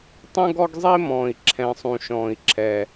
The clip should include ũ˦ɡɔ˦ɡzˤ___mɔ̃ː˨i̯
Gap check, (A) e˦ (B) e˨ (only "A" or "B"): A